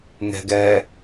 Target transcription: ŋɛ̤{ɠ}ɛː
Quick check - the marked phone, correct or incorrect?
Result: incorrect: ɡ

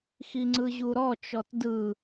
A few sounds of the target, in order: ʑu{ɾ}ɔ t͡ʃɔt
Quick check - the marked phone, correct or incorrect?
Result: correct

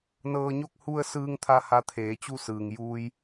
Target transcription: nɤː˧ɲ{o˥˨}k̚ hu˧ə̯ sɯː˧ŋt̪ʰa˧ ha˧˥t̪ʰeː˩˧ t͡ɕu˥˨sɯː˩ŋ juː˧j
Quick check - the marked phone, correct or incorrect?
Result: correct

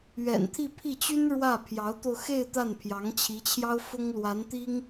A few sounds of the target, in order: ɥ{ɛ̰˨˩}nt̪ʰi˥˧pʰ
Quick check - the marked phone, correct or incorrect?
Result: correct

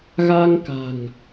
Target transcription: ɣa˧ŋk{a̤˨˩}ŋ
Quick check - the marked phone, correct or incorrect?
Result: correct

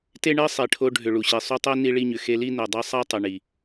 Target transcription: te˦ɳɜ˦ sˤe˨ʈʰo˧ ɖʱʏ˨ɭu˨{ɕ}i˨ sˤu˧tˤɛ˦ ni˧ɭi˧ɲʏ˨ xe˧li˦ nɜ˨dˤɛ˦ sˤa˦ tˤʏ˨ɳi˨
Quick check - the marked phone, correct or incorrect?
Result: correct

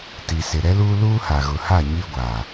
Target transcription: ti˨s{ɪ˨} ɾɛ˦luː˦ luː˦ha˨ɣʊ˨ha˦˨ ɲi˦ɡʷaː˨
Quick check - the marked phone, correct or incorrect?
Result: correct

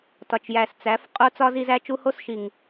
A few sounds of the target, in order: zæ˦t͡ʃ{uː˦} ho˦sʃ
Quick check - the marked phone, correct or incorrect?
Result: incorrect: u˦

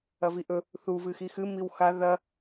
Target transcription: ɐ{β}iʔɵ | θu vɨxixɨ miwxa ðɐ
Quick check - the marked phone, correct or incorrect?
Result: incorrect: v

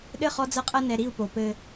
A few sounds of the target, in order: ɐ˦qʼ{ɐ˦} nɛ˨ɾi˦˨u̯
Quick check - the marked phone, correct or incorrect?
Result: correct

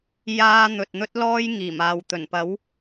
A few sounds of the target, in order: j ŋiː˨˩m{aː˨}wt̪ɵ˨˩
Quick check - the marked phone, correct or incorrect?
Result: correct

